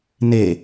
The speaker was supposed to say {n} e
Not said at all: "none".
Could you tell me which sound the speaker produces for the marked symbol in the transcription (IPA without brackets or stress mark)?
n